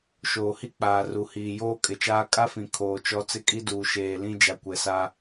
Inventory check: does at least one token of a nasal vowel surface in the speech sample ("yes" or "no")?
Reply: yes